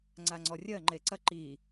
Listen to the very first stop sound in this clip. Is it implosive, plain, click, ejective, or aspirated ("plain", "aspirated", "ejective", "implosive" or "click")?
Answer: click